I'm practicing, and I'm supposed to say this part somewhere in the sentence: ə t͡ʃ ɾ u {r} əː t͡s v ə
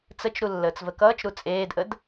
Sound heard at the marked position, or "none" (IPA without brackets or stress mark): lː